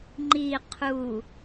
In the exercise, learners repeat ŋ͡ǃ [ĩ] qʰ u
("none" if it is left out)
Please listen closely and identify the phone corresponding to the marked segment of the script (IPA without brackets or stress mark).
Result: i